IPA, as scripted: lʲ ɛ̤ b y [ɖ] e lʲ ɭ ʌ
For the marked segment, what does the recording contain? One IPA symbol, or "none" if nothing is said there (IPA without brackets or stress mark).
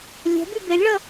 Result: b